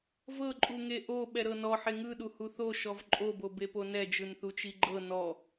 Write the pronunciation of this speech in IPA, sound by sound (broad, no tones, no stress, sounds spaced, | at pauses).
v ɤ ǃʼ u ŋ e ʔ o ɓ ɛ ɾ ɤ n ɔ ħ e ŋ ɯ ɗ u h u θ o ʃ ɔ v ǃʼ o b o b e p o n ɛ d͡ʒ ɯ n θ u t͡ʃ i ɡ͡ǃ ɤ n ɔ